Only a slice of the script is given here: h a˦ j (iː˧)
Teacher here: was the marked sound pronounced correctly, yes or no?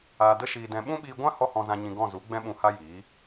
no